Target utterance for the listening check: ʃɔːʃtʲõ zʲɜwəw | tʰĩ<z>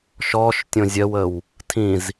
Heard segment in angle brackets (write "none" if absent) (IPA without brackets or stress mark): z